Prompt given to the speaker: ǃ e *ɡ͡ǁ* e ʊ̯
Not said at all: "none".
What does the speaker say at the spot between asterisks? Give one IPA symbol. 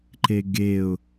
ɡ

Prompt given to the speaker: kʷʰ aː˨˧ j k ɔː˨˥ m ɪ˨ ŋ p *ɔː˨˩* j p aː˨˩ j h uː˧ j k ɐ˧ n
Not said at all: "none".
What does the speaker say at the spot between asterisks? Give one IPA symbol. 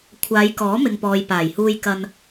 ɔː˨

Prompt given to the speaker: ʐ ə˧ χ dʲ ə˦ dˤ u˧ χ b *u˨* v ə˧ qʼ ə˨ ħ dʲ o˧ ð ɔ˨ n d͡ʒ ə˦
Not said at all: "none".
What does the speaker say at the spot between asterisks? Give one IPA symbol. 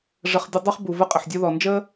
u˨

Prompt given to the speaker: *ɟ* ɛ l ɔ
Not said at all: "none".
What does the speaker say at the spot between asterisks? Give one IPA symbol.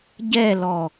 ɟ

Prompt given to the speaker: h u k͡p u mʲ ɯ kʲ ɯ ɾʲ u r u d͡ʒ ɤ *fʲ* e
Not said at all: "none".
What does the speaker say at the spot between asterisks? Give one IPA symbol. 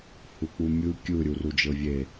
vʲ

